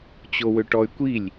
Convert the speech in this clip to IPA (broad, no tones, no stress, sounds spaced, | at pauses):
t͡ɕ o w ø ʈ ɔ y̯ kʷ i lʲ